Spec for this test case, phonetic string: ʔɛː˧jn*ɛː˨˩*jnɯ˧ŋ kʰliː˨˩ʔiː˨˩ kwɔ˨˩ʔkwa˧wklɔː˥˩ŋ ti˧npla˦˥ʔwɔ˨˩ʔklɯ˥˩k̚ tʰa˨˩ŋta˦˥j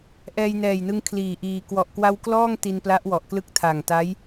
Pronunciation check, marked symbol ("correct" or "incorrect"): correct